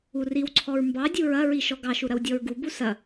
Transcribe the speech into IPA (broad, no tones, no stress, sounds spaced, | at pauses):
u r i w ǀʰ ɔ ɹ m b ɑ dʲ u ɹ ɐ ɹ i ʃ ɔ ɡ ɑ ʃ u ɾ ɐ w dʲ ɔ ɹ ɡ u b u s ɐ